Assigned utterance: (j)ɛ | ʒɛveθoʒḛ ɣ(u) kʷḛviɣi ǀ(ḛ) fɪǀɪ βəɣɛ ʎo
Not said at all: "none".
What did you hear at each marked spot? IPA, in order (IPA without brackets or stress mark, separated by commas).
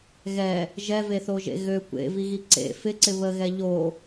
ɣ, ø, ḛ